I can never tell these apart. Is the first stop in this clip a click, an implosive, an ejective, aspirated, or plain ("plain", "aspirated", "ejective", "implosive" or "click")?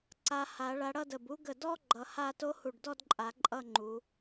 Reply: click